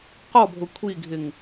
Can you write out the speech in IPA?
q ɔ bʱ ʊ kʷʰ i ɡʱ ɪ ŋ

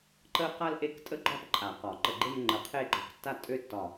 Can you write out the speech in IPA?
ǃ ə˥ q a˥ l ʔ e˥˧ k tʼ ə˥ ɡ͡ǃ ɒ˥˧ p ǃʼ a˨˩˦ q ɒ˨˩˦ ǃ ə˧˩ ɡ͡ǃ e˥˧ m ŋ͡ǃ ə˨˩˦ qʰ e˥˧ ɡ͡ǃ ɒ˧˩ k tː a˥˧ tʼ ø˥ tː ɒ˧˩

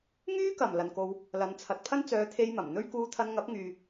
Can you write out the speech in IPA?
ŋ yː˥ k ɐ˨˩ m l ɐ˨ n k o˧ w | l ɐ˨˧ n t͡sʰ ɐ˨ t̚ pʰ ɐ˥ n t͡s œː˨˧ t̪ʰ e˧ j m ɐ˨˩ m n̪ ɵ˥ ɥ k uː˧ t̪ʰ ɐ˧ n ŋ ɐ˨˥ p̚ ŋ yː˨

